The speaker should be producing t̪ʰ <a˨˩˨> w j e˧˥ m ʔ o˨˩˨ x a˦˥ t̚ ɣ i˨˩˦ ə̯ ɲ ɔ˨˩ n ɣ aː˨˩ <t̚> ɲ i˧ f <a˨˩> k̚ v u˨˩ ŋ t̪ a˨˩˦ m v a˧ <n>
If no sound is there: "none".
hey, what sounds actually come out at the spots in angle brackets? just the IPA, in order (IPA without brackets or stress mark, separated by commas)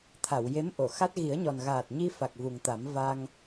a˨˩˨, t̚, a˨˩, ŋ